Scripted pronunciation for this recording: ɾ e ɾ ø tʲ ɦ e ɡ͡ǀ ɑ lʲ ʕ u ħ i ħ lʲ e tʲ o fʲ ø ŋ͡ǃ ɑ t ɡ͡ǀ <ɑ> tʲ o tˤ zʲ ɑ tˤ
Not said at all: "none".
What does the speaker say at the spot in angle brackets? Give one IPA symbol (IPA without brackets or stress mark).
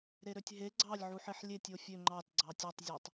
ɑ